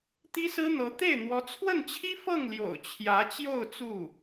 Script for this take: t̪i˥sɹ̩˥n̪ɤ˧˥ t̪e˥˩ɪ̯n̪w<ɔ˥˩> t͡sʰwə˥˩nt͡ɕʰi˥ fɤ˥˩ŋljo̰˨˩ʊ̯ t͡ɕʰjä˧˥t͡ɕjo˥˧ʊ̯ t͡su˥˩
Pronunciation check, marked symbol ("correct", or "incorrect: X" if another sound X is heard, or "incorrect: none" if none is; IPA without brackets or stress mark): incorrect: ɔ˧˥